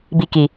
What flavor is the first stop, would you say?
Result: plain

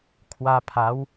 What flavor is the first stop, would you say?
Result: aspirated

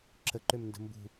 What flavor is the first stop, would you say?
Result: click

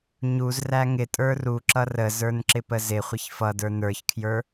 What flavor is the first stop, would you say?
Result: ejective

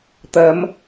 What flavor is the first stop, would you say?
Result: plain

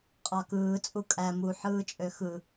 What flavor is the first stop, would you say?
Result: ejective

